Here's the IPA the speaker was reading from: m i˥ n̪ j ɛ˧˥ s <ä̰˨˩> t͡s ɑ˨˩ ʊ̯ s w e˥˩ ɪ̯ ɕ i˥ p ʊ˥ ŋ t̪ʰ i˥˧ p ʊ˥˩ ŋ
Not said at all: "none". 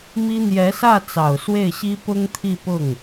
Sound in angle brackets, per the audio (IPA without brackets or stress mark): ä˥˩